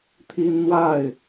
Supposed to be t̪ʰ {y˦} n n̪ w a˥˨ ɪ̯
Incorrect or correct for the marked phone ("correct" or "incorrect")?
incorrect